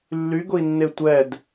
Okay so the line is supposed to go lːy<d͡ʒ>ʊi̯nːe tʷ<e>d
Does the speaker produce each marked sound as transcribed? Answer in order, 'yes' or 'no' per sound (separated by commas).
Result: no, no